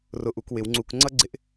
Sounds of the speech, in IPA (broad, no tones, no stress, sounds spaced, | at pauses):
r ʊ ʔ u k w ɪ w ŋ͡ǀ u k ŋ͡ǀ ʌ ɡ͡ǀ ɪ ʔ